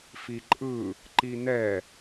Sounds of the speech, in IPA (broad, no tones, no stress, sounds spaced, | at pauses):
f i ǃʼ ɯ | ǃ i n ɛ